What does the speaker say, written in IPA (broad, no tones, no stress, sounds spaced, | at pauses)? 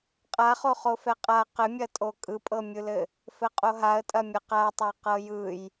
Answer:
qʼ a χ o χ o f ɛ qʼ a q ɘ mʲ ɐ tʼ o kʼ ɯ pʼ ɤ mʲ ɯ l ɘ | f ɘ qʼ o ɦ a ə̯ tʼ ɐ mʲ ɐ q a tˤ a q ɤ j ɯ j